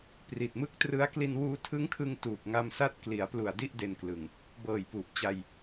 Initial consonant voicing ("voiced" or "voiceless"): voiceless